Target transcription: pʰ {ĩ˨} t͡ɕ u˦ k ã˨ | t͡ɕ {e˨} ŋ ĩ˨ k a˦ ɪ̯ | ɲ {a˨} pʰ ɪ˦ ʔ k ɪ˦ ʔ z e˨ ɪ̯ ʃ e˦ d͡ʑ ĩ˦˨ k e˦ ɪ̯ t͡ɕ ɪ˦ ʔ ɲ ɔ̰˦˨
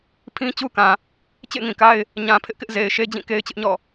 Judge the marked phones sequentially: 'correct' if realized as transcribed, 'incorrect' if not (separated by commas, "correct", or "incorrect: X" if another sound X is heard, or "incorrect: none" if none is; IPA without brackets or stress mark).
incorrect: ĩ˦, incorrect: ḛ˦˨, incorrect: ã˨